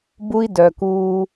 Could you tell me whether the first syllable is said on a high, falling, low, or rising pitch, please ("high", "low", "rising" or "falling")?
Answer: high